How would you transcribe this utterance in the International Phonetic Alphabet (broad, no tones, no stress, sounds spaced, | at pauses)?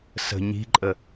s ə̤ ɲ i̤ ǃʼ ə